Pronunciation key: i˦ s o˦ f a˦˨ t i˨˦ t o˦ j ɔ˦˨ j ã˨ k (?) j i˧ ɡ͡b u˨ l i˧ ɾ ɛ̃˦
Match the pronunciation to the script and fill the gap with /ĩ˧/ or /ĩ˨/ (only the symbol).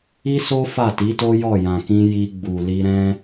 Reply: ĩ˧